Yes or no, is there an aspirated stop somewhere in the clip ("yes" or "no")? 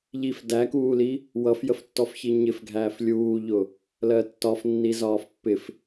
no